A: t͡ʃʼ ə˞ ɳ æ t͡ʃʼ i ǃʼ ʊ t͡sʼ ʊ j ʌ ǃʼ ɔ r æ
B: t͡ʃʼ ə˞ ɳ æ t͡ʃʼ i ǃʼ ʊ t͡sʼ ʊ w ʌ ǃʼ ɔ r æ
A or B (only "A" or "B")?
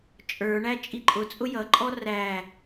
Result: A